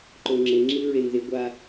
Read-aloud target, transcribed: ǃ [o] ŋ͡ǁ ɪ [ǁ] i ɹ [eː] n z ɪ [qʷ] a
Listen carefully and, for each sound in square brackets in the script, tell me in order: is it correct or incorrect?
correct, incorrect: ŋ͡ǁ, incorrect: e, incorrect: ɡʷ

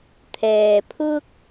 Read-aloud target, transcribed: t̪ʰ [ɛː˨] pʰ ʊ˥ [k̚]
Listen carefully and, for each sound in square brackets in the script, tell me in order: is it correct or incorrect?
correct, correct

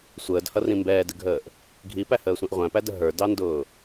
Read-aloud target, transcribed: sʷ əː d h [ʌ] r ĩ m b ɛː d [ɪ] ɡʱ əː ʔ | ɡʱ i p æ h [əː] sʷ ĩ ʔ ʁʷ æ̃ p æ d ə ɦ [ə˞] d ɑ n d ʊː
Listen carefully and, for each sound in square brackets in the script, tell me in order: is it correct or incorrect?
correct, correct, correct, correct

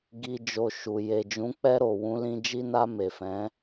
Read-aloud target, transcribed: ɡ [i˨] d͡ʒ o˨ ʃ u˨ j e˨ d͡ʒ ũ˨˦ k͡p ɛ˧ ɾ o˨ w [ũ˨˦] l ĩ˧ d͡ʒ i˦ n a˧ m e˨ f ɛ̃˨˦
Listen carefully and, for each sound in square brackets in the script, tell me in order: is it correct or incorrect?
correct, correct

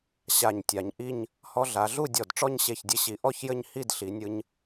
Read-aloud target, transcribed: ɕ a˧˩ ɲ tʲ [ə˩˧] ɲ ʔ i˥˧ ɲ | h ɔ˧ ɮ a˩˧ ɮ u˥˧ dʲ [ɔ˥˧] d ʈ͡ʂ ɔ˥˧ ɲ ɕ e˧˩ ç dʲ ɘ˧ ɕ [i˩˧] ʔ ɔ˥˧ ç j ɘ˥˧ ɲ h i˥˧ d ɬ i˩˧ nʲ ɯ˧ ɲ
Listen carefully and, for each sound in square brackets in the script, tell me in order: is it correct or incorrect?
incorrect: a˩˧, incorrect: ɔ˧˩, correct

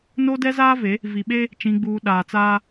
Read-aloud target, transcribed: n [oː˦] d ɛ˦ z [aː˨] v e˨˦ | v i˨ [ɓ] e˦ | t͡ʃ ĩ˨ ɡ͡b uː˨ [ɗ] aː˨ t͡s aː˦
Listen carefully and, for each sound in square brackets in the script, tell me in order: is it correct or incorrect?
incorrect: o˦, incorrect: aː˦, correct, correct

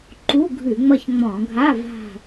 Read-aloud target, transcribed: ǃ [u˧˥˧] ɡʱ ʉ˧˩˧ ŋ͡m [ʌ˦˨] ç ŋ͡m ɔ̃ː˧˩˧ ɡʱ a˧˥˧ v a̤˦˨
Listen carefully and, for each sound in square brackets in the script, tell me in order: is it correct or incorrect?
correct, correct

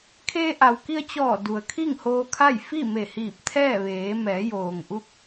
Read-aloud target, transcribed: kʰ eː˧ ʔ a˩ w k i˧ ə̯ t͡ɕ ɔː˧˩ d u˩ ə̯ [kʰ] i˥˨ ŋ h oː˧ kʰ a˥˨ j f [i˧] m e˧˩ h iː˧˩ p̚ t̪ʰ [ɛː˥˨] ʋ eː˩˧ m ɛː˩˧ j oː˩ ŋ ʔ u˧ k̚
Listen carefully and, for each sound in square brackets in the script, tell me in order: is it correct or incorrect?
correct, incorrect: i˥˨, correct

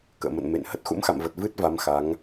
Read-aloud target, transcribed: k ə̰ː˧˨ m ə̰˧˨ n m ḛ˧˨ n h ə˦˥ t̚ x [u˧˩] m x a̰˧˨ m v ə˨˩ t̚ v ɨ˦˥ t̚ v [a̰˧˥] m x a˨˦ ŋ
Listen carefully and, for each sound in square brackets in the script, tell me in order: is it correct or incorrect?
incorrect: ṵ˧˥, incorrect: a˨˦

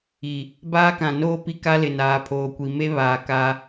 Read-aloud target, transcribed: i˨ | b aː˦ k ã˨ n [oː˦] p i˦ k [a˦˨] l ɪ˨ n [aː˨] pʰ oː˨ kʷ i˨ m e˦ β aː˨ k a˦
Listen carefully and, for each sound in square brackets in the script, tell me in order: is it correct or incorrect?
correct, incorrect: a˦, correct

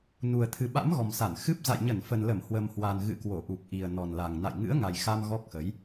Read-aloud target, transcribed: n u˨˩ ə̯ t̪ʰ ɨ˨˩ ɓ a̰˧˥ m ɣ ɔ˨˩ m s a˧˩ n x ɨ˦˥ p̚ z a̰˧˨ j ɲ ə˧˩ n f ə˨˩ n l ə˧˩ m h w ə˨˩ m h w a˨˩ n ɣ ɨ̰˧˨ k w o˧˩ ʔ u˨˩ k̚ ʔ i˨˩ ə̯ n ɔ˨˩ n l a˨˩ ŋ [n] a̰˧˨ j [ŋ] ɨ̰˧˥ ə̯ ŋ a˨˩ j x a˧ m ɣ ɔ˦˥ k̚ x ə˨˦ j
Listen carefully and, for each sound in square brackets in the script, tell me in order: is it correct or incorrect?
correct, correct

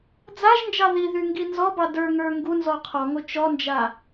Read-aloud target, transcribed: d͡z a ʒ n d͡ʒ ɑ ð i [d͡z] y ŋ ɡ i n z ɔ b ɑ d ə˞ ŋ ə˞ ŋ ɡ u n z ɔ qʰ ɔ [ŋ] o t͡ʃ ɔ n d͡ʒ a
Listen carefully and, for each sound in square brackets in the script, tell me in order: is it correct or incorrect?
incorrect: ð, correct

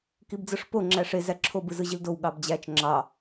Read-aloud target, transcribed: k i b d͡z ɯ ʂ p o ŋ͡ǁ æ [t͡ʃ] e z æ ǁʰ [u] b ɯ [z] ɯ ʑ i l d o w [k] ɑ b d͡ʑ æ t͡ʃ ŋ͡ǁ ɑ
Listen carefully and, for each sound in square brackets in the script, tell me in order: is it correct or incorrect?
incorrect: ʂ, incorrect: o, correct, incorrect: ɠ

